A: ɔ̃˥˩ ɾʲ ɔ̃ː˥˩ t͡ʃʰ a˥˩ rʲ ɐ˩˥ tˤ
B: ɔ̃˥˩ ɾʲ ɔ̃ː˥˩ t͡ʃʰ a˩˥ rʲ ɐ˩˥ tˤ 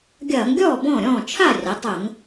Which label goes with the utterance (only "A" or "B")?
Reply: A